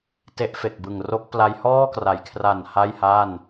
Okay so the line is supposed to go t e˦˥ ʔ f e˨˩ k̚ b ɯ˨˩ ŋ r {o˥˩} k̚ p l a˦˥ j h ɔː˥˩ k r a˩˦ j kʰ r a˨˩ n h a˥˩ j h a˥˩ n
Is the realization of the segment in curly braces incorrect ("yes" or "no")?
yes